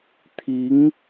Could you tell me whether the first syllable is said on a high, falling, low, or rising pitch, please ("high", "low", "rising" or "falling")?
rising